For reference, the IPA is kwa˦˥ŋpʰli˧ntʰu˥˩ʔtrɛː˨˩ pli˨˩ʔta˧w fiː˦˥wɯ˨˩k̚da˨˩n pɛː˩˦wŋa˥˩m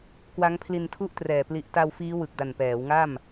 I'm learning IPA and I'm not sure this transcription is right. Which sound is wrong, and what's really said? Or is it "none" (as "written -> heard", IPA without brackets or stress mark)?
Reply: none